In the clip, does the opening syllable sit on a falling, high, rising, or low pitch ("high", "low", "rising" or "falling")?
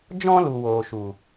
high